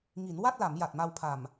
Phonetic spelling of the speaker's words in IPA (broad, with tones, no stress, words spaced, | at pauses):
ŋi˩˦nwa˥˩t̚la˩˦m ja˨˩t̚ma˧wpʰa˨˩m